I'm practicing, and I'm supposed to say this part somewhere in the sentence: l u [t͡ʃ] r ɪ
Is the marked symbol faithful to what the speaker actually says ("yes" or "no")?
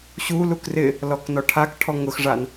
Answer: no